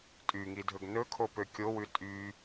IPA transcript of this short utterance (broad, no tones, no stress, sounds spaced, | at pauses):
tʼ y ŋ i dʱ ɵ ɡ n ɵ kʰ o p ø kʲ o w ʉ tʼ y